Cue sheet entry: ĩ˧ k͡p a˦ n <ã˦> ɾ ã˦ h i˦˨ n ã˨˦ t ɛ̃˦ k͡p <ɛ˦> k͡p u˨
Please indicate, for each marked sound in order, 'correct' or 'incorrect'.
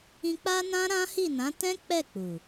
correct, incorrect: ɛ˦˨

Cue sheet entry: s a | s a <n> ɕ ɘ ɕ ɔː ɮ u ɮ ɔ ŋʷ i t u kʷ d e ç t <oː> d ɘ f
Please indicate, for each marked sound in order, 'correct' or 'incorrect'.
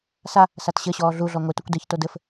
incorrect: t, incorrect: o

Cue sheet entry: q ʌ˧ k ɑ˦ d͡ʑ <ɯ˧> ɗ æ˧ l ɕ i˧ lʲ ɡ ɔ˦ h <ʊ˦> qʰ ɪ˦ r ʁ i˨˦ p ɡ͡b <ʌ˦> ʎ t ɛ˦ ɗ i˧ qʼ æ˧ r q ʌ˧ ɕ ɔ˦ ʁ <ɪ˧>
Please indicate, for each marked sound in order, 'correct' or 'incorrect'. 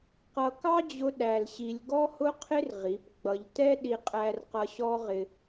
incorrect: ʊ˧, correct, incorrect: ʌ˧, correct

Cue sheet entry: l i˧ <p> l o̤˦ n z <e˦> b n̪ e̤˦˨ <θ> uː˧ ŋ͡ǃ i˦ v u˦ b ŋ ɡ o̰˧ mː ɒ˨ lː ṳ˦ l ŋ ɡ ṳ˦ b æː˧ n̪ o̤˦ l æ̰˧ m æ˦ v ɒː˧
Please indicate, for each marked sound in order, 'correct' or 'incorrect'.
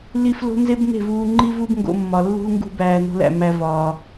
incorrect: f, correct, incorrect: v

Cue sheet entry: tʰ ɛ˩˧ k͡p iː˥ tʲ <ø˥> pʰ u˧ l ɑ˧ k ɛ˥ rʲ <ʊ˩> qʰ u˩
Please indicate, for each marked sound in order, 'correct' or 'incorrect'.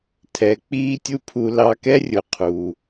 incorrect: u˥, correct

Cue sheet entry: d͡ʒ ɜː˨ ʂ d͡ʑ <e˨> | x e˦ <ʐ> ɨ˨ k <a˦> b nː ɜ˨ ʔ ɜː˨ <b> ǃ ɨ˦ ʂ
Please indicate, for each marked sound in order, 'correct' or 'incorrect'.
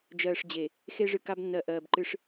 correct, correct, correct, correct

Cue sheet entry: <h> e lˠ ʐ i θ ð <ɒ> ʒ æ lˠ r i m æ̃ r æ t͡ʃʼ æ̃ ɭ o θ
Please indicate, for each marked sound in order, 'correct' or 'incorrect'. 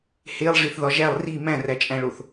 correct, correct

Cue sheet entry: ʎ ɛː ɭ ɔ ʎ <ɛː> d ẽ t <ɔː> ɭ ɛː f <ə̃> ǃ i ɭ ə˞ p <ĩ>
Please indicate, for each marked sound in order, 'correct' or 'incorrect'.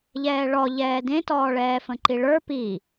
correct, correct, correct, incorrect: i

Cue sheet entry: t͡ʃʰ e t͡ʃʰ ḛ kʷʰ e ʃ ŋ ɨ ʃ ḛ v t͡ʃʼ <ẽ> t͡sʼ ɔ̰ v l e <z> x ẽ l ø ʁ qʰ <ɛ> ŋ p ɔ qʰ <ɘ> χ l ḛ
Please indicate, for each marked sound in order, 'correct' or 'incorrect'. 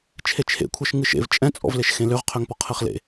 incorrect: ɛ̃, incorrect: ʃ, incorrect: ø, correct

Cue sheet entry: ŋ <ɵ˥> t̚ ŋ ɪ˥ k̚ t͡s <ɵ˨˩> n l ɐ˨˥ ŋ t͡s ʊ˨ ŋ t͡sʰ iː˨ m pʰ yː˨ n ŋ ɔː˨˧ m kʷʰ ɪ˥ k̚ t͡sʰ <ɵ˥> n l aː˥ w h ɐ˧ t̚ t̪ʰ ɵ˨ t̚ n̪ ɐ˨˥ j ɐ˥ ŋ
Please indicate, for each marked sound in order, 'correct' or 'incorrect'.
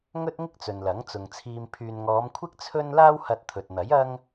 correct, incorrect: ɵ˨, correct

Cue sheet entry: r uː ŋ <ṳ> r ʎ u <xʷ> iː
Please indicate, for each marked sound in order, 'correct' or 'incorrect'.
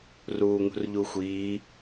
correct, correct

